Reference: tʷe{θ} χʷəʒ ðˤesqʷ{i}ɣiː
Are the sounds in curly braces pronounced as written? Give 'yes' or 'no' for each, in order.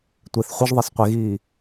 yes, no

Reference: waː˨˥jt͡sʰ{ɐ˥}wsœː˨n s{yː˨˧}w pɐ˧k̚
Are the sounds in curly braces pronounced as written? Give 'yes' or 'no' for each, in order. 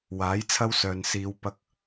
yes, no

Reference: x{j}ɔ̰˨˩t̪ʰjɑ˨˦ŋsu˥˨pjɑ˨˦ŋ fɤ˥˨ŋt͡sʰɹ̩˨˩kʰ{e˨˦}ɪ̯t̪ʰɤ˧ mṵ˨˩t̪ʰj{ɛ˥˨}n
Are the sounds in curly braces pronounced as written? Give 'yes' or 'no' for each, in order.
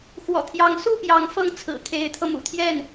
no, yes, yes

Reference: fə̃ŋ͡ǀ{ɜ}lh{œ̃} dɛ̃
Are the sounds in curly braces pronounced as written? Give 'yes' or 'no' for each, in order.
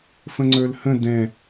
no, no

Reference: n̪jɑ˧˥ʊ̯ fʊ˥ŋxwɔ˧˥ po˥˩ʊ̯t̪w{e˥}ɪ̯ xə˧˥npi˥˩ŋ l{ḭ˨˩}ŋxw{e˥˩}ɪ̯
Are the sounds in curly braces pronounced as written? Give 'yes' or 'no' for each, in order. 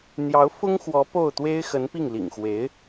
yes, yes, no

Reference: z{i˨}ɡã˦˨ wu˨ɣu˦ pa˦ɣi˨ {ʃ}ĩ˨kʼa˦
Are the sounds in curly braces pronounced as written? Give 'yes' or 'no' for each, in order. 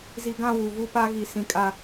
yes, no

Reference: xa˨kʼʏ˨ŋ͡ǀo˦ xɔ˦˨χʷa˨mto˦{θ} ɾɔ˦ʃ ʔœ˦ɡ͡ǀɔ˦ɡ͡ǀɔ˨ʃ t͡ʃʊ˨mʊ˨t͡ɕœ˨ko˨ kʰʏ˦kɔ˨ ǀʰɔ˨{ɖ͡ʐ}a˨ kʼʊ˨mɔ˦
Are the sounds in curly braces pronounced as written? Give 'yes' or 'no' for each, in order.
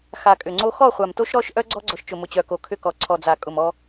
no, no

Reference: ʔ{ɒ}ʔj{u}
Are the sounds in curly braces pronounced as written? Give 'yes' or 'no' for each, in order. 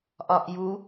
yes, yes

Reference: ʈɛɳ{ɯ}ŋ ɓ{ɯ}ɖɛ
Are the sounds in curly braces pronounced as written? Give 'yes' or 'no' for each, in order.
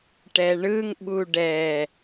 yes, no

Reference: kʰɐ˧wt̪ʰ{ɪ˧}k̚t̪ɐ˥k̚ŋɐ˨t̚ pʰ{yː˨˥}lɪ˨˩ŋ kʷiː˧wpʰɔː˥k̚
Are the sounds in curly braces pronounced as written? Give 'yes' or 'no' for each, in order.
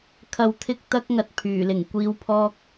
no, no

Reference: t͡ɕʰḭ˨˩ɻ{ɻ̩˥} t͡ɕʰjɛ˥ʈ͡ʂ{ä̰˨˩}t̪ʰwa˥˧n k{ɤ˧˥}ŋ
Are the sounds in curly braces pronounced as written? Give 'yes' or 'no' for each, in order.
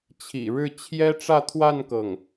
no, no, no

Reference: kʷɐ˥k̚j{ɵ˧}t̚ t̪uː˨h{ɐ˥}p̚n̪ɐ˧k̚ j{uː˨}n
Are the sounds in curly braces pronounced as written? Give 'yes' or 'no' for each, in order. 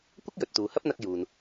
no, yes, yes

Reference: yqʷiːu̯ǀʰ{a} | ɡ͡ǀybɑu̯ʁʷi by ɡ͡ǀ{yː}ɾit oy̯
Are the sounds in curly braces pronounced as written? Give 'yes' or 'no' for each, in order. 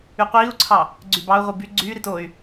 no, yes

